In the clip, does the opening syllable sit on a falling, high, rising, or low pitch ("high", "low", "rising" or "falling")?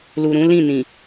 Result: low